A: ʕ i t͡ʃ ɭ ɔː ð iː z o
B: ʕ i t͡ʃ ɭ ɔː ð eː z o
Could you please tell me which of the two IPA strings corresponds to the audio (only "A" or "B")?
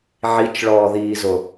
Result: A